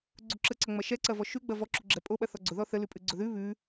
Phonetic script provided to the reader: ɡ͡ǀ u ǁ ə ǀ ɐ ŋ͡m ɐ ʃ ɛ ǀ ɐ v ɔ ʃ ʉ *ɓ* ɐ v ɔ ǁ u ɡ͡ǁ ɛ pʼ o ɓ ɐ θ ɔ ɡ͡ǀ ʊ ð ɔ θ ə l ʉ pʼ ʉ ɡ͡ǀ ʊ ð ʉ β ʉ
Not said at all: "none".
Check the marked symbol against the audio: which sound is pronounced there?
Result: ɡ͡b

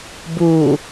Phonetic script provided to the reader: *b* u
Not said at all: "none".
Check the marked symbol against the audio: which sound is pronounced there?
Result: b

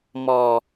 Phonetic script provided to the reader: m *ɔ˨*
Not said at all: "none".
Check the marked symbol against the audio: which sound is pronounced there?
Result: ɔ˨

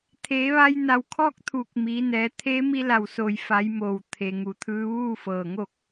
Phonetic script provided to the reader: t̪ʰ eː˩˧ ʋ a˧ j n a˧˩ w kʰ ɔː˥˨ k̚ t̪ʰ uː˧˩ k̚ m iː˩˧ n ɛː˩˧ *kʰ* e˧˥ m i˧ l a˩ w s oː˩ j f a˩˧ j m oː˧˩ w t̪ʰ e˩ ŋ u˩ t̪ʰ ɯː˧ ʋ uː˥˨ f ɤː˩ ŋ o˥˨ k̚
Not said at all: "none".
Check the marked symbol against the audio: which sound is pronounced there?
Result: t̪ʰ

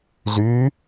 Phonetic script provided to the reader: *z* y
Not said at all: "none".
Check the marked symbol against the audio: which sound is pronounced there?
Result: z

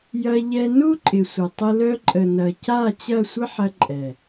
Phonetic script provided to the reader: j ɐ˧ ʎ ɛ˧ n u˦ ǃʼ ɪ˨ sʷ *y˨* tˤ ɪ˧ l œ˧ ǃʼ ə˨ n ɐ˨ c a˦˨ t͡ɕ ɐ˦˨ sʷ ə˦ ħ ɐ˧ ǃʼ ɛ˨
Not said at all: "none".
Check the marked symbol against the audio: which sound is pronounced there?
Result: ɪ˨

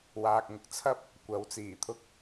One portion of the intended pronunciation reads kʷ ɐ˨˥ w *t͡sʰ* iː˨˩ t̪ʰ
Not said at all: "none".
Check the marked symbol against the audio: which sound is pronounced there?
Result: t͡s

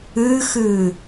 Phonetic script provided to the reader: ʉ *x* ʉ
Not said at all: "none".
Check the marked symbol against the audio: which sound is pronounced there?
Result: x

